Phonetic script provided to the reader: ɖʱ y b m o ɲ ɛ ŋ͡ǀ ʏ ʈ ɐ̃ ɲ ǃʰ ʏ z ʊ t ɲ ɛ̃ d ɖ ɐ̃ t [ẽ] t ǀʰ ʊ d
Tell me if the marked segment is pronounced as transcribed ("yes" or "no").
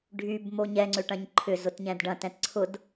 no